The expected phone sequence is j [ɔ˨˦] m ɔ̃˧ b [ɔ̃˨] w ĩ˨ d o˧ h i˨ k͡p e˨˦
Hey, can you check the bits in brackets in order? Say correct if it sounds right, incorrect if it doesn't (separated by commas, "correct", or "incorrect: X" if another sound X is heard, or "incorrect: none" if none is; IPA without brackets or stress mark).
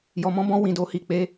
incorrect: ɔ˨, incorrect: ɔ̃˧